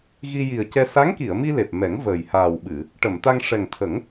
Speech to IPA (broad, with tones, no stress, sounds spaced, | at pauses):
ɣ i˧ j i˨˩ ə̯ c ɛ˧ s a˧˥ ŋ k i˨˩˨ ə̯ m i˧ l e˨˩ p̚ m ɛ˨˩˦ ŋ v əː˨˩ j h aː˨˩ w ɓ ɨ˨˩˨ | ʈ ə˨˩˨ m t̪ a˧ ŋ ʂ ɛ˨˩ ŋ t̪ʰ ə˨˩˦ ŋ